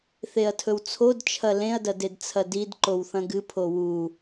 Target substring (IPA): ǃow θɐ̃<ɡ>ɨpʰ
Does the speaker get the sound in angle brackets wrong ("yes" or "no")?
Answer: no